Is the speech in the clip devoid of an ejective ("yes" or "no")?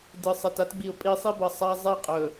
no